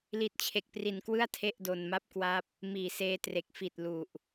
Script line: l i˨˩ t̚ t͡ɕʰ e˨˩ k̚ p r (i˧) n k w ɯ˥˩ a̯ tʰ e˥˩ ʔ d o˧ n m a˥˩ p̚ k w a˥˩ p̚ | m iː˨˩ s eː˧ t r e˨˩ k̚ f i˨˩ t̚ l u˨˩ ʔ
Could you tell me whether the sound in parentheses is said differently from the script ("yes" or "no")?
yes